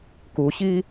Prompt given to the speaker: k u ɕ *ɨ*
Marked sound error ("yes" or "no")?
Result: yes